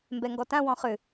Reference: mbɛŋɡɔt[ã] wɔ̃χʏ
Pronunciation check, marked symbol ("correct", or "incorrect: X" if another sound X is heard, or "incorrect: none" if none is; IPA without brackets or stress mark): correct